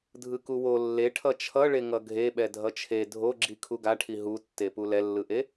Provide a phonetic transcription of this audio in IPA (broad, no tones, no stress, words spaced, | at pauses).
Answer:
dʱɯkuwo lːeʈʰʌ t͡ʃʰʌɭe ŋʌɡʱeɓɛ dʱʌt͡ʃʰe dʱoɡ͡ǁi kʰuɡaʈʰi ɦutːepu lɛlːɯʔe